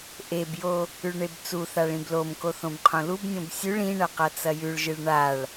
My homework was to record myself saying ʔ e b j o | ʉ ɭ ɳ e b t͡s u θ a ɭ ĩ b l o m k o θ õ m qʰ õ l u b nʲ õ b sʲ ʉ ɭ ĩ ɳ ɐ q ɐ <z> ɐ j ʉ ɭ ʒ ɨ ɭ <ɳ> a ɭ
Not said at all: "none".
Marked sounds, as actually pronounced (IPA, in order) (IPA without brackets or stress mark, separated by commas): t͡s, ɳ